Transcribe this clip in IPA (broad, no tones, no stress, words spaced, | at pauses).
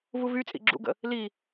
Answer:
vuvyt͡sʼḭ ɡ͡ǁṵɡə̰ | li